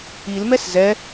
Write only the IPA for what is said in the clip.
i l m ɛ s z ɛ

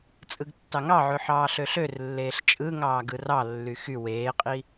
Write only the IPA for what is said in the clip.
t͡sʼ ɯ ɡ tː ɑ ŋ ɑ ʕ ø ħ ɑː ɬ ø ɬ ø r lː eː ɬ t͡ʃʼ ɯ ŋ ɑː ɡ ɯ r ɑ lː y x y w eː qʼ i

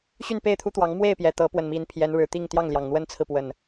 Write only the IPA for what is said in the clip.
ɕ y˥˨ n p e˥˨ ɪ̯ t̪ʰ u˦ t̪ w ɑ˨˦ ŋ m w e˥˨ ɪ̯ p j ɛ˩ t̪ ɤ˨˦ p w ə˨˩ n m i˨˦ n pʰ j ɛ˨˦ n ɻ ɻ̩˨˩ t̪ i˥˨ ŋ t̪ j ɑ˥˨ ŋ l j ɑ˩ ŋ n̪ w ə˦ n t͡sʰ ɹ̩˨ p w ə˨˩ n

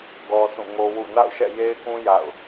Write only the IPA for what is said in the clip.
ɡ ɔ˦ s ũ˦˨ ŋ o˦ w ṵ˦˨ n a̰˦˨ ʊ̯ ʃ ɛ̰˦˨ j e˦ ɪ̯ k ũ˦ j a̰˦˨ ʊ̯

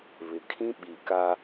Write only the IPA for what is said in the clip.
β ɪ˨ kʰ ĩ˦ ɓ i˨ k a˦

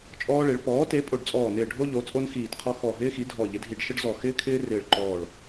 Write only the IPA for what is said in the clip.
t͡ʃʼ ɔː˥ ɭ e˨˥ ɭ p ɔː˨˥ t e˨˥ pʼ o˧˩ ɖ t͡sʼ ɔː˧˩ n ɪː˧˩ ɖʱ o˥ ʎ o˨˥ t͡sʼ o˥ n x iː˧˩ t qʰ ɔ˥ x ɔ˧˩ ɦ ɪː˥ x i˨˥ dʱ ɔ˧˩ ʎ ɪ˨˥ dʱ i˧˩ ɖ ʃ ə˥ ɖ z ɔ˧˩ x ɪː˥ kʰ ɪː˥ r ɪː˧˩ ɭ ǃ ɔː˧˩ ɭ

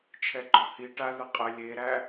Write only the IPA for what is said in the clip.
t͡ʃʰ ɛ ɡ͡ǃ ɔ h i ʈ a ð ə qʼ ə lʲ e ɾ æ

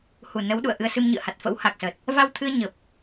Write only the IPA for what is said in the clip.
h u˨˩ n ə˨˦ w ɗ ṵ˧˨ ə̯ ʔ ɨ˧ ə̯ s ɨ˧ m ɲ ɨ̰˧˨ ə̯ h a˨˩ t̚ f ə̰˧˥ w h a˨˩ k̚ s əː˨˩ t̚ | v a˧ w t̪ʰ ɨ˧ ə̯ ɲ ə˨˩ p̚

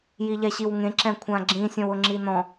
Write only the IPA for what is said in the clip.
j i ʎ ɛ ɕ i w ŋ ẽ ǁ ɛ̃ kʷʰ ã ɡ͡ǁ ĩ sʲ ɔ̃ w ʊ ŋ͡ǁ i n ɔ̃

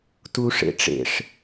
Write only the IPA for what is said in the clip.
t u ʂ ḛ ʈ͡ʂ ḛ ʂ

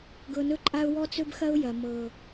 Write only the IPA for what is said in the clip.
ɡ ɤ˧ n ɵ˦ ǃʼ a˦ ʊ̯ w ɔ˦ t͡s ɵ˦ b x ɐ˦ ʊ̯ j ɐ˨ m ɤ˨

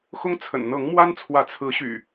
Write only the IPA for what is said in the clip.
x ʊ˦ ŋ t͡sʰ ə̰˨˩ n n̪ ɤ˨˦ ŋ m w a˦ n t͡sʰ w ä˨˦ t͡sʰ ɹ̩˨˦ ɕ y̰˨˩

